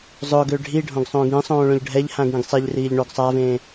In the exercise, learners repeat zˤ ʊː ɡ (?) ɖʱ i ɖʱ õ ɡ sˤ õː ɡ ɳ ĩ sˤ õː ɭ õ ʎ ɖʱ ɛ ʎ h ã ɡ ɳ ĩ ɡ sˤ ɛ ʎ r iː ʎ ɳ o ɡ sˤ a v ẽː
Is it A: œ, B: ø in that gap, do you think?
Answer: B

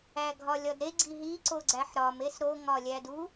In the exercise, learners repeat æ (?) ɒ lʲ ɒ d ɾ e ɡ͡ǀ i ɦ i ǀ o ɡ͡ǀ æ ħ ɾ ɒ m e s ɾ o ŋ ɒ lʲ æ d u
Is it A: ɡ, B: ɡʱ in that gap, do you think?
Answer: B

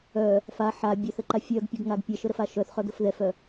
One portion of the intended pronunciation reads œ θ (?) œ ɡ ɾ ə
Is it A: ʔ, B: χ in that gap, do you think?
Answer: B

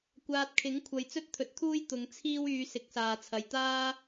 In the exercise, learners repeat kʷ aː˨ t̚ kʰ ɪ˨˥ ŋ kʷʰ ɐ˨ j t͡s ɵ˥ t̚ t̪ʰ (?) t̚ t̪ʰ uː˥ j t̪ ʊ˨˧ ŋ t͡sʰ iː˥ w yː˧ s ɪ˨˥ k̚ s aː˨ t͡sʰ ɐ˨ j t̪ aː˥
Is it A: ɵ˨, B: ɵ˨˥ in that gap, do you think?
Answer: B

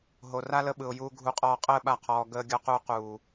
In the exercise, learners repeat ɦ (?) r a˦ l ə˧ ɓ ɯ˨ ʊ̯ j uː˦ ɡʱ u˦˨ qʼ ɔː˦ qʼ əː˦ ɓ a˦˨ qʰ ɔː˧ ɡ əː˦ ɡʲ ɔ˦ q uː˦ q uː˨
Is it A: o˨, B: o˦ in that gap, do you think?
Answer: A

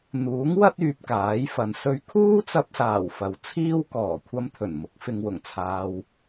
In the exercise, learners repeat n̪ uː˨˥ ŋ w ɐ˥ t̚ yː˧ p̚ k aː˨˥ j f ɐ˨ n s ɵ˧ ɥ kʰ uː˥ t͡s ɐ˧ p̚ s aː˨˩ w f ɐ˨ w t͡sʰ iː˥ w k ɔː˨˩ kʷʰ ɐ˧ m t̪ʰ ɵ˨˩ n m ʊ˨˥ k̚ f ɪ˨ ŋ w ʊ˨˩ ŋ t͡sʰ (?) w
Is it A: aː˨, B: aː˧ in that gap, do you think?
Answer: A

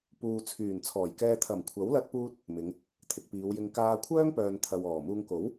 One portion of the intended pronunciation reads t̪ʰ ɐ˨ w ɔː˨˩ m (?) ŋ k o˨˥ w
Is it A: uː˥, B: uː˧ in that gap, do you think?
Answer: B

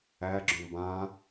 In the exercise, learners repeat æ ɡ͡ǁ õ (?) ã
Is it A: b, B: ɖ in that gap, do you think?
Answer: A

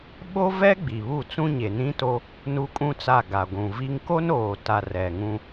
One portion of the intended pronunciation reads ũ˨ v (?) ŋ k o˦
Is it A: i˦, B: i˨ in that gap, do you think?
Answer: A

